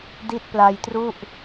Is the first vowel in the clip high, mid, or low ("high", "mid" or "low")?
high